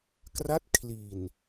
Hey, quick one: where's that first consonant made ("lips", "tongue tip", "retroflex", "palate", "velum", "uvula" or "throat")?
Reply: velum